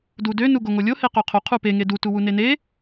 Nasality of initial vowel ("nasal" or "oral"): oral